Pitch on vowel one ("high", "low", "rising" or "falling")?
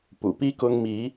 low